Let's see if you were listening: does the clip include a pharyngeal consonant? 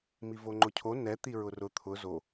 no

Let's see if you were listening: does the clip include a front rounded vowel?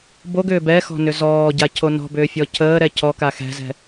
yes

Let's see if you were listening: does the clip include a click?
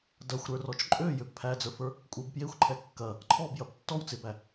yes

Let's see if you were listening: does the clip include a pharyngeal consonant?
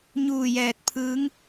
no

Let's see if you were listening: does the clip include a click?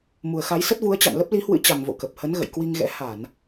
no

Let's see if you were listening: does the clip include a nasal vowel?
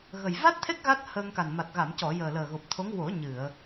no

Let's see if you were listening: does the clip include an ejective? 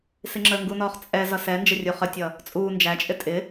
yes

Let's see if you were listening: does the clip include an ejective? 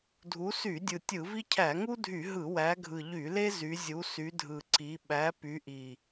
no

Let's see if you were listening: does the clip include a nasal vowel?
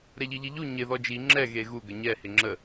no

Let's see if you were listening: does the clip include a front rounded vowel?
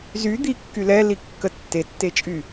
yes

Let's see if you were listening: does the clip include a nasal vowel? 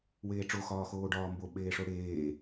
no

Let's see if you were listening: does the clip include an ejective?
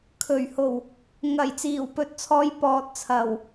no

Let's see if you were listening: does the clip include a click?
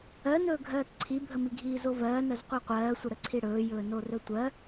yes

